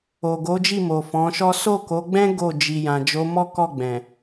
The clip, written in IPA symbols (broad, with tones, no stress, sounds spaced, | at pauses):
o˨ ɡ o˨˦ d͡ʒ i˦˨ m o˨ f ɔ̃˨˦ ʃ ɔ˦ s o˦˨ k o˨˦ ɡ͡b ɛ̃˦ ɡ o˦˨ d͡ʒ i˨ j ã˨ d͡ʒ o˨˦ m ɔ˦ k ɔ˦˨ ɡ͡b ɛ̃˨